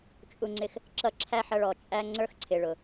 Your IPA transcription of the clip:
t͡ʃʼ u˨ ŋ͡ǀ ɪ˨ x | ǁ ʌ˦ ǁʰ æ˥ ħ ʌ˦ ɭ ɔ˨ t͡ʃʼ æ˥ ŋ͡ǀ ə˞˥ x ǀʰ ɪ˨ ɭ ʊ˩

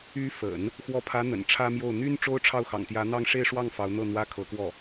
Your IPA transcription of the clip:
y˧˥ f ə̰˨˩˦ n | x w ɔ˧˥ pʰ ä˧˥ n̪ ə̰˨˩ n ʈ͡ʂʰ ä˥ m j o˥˩ ʊ̯ n̪ y˥ n ʈ͡ʂ o˥ ʊ̯ ʈ͡ʂʰ ɑ˥˩ ʊ̯ x ɑ̰˨˩ ŋ t̪ j ä˧˥ n̪ ɑ˥˧ ŋ ʂ e˥˧ ɪ̯ ʂ w ɑ˥˩ ŋ f ɑ˧˥ ʊ̯ n̪ ɤ˥˩ n̪ w ä˥ kʰ ɤ˧˥ k w ɔ˥˩

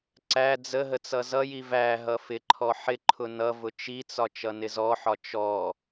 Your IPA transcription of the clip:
ǀ æ d͡z ə ɦ ə t͡s ʌ z ʌ j i v æ ɦ ʌ f ɪ ǃʰ ɔ ħ ɪ ǃʰ ʊ n ʌ v ʊ t͡ʃ i t͡s ɒ t͡ʃ ʌ n ɪ z ɔ ħ ɒ t͡ʃ ɔ

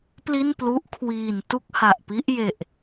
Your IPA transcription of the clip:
p l i˥˩ n p l u˦˥ ʔ kʰ w iː˨˩ n t u˥˩ k̚ h a˨˩ ʔ p i˦˥ ʔ j e˨˩ ʔ

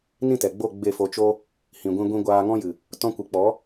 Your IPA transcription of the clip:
n ĩ˦˨ t ɛ˨ ɡ͡b o˦˨ ɡ͡b e˦˨ f o˧ t͡ʃ o˦ | h ĩ˨ ɡʷ ĩ˧ ɡʷ ĩ˧ ɡʷ aː˧ ŋ ɔ̃˦ j ɨ˨ | t ɔ̃˧ kʷ ɨ˨ k͡p ɔ˨˦

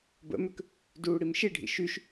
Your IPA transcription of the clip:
b ə̰ m ʏ k | d uː ɽ i m ʃ i ɖʱ ḭ ʃ y ʃ

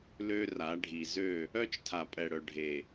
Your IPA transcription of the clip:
l ø˦ r a˨˦ ɖʱ i˨ z ø˦˨ | œ˦ t͡ʃ tʰ a˨ pʼ ɛ˨ ɽ œ˨ ɖʱ e˨

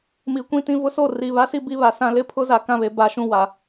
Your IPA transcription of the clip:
m iː˨ kʷ ĩ˦ t ĩ˦˨ v ʊ˦ s o˦˨ r i˨ β a˦ s i˦ b i˦ β a˨ s ã˦ l ɪ˦ pʰ ʊ˦ z a˨ k ã˦˨ β e˨ b a˦ ʃ ũ˦ w a˨

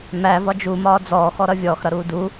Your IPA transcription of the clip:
m æ v ɒ d͡ʒ u m ɒː d͡z ɔː x ɔ ɾ ʌ vʲ ɔː x ɾ ʌ ɾ uː d u

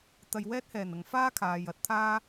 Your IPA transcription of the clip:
t̪ ɐ˧ j w ɛː˥ t̚ h ɛː˨˩ n ɐ˨ ŋ f aː˥ kʰ aː˨ j ɐ˨˥ t̚ t̪ʰ aː˥

